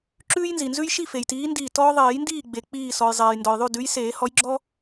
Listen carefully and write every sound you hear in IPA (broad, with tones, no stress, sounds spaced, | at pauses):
ǁ ʉː˦ j n z i˩ n z ʉ˦ j ʃ i˥˨ f e˩ j t iː˨˦ n d iː˧˩ t ɔː˦ ðˤ eː˨˩˦ j n d iː˥˨ ɡ͡b e˩ k͡p iː˧˩ s ɔ˩ j zˤ eː˩ j n d ɔ˩ j ðˤ ʉ˥˨ d ʉ˨˦ j s eː˨˩˦ h ɔ˨˦ j ɡ͡ǁ ɔ˦